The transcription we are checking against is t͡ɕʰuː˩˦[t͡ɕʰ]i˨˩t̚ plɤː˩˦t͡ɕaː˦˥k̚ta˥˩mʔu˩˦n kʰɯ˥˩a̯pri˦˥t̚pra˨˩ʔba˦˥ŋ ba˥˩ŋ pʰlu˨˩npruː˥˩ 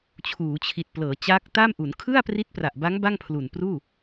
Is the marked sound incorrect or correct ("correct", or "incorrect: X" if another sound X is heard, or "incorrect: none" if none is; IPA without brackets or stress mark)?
correct